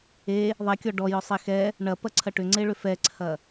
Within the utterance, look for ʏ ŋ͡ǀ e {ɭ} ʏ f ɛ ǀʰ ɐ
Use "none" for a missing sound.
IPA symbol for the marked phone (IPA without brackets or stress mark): ɭ